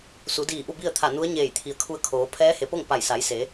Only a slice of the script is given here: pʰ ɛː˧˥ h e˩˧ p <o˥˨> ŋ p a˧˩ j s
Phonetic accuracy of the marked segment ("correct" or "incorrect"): correct